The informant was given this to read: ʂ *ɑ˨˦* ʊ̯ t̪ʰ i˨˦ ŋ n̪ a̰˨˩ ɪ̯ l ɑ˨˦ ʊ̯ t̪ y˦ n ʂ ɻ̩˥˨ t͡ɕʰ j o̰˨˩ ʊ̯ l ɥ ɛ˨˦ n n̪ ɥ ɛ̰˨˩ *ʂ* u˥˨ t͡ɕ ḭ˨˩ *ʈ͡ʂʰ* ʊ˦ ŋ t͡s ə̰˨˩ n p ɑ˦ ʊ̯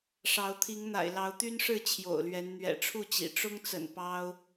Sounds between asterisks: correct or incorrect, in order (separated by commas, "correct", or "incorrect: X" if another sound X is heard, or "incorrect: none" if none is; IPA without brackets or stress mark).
correct, incorrect: ʈ͡ʂʰ, incorrect: ʈ͡ʂ